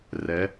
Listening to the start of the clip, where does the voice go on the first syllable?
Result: rising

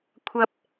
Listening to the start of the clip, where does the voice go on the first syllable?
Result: high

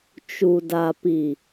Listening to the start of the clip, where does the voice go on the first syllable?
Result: low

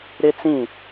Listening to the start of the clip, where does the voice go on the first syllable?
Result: high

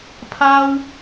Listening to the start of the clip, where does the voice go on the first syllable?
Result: high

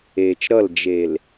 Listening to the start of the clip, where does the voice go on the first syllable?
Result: low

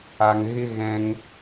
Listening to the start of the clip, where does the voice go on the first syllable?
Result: high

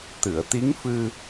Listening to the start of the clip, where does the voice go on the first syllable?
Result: low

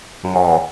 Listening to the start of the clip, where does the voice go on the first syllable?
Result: low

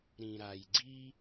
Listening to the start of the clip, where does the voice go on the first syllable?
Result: low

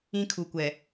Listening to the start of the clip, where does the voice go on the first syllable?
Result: high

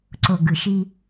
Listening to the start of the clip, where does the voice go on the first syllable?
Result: low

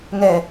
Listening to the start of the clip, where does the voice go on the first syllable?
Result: low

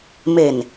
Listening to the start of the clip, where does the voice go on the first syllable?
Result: low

